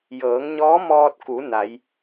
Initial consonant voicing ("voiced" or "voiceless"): voiced